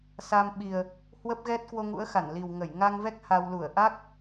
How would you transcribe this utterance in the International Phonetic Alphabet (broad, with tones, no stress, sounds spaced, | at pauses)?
s a˧ m ɓ i˨˩ ə̯ | h w ə˦˥ p̚ ɣ ɛ˦˥ t̚ k w o˧ ŋ ṵ˧˥ ə̯ x a˧˩ n l i˨˩ w ŋ ə˧˩ j ŋ a˧ ŋ v ɛ˦˥ k̚ h a˧ w l u˧˩ ə̯ ʔ a˦˥ k̚